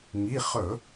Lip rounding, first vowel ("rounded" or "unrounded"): unrounded